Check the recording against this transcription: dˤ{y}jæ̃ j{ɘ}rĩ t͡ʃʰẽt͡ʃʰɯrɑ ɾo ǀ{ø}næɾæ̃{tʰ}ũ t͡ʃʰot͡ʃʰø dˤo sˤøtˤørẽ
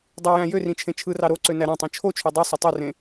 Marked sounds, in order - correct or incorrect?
correct, incorrect: ø, correct, incorrect: tˤ

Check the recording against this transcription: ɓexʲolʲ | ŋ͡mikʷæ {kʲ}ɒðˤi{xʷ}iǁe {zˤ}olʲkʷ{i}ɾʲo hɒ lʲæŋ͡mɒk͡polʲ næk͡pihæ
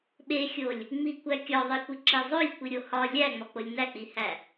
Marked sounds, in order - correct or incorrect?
correct, incorrect: kʷ, correct, correct

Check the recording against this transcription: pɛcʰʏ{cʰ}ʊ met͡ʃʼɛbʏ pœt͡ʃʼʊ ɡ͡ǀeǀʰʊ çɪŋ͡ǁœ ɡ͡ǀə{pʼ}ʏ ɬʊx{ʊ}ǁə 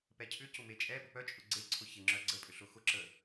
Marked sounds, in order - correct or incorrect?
incorrect: c, correct, correct

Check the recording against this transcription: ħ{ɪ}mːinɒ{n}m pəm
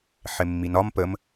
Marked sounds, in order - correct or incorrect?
correct, incorrect: none

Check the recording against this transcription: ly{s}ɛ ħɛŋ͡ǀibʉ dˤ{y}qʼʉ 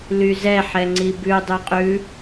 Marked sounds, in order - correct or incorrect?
incorrect: z, correct

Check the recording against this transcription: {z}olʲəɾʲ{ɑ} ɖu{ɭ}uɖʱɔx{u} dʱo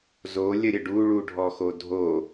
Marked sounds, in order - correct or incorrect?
correct, incorrect: ə, correct, incorrect: o

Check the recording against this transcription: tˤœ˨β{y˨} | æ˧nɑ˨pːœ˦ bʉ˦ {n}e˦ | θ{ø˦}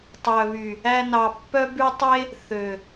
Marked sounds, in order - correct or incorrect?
correct, incorrect: tˤ, incorrect: ø˨

